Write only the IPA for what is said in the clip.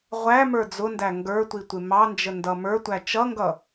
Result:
ʁʷæmə˞ d͡zʊndæ ŋɡə˞tʷi tʷɪmɑnd͡ʒə ndʌmə˞tʷæ t͡ʃʌŋɡʌ

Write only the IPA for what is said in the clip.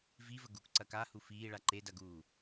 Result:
vivə ɡukǀɐ kahu fiːɭa ǃedɐɡuː

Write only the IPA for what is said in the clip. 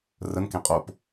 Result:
rənkẽ qʼop

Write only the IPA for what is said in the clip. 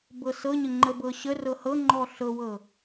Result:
bɤsɤɲə ŋ͡ǃəbɤɕərɤ hɤŋ͡ǃɔ ɬɤwɤ

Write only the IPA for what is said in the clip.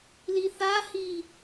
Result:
liθahi

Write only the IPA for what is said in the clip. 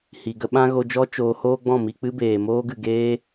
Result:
hi˨ɡə˦ɓã˦ ɣo˧d͡ʒɔ˦ t͡ʃoː˧hoː˦ɡ͡bɔ̃˦˨ mi˧ k͡pɨ˦beː˨moː˦ɡɨ˨ ɡeː˦

